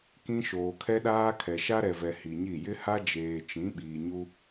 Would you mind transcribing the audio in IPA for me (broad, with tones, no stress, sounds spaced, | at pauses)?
k ĩ˦ ʃ oː˨ kʰ ɛ˦ ɗ aː˦ kʰ ɛ˨ ʃ a˦ ɾ ɛ˨ v ɛ˨ h i˨ ɲ i˦˨ j ɪ˦ h a˦ d͡ʒ eː˨ t͡ʃ ĩ˨˦ ɓ iː˨ ɲ u˦